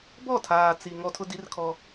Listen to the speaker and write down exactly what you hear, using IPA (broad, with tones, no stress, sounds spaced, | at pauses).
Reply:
b ɔ˦˨ tʰ aː˨ t͡s i˨ ŋ ɔ˦ tʰ ʊ˦ d i˦ r kʰ ɔ˦